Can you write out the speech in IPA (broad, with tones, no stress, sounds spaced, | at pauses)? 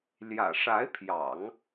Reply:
l j ä̰˨˩ ʂ a˧˥ ɪ̯ pʰ j ɑ̰˨˩˦ ŋ